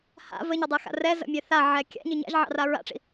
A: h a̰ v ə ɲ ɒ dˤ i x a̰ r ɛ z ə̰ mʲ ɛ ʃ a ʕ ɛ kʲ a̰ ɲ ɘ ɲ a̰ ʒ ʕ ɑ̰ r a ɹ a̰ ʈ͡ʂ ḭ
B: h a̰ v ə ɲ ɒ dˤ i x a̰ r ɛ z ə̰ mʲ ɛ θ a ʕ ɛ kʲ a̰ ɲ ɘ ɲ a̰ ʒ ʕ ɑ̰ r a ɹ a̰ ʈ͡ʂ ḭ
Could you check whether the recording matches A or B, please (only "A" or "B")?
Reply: B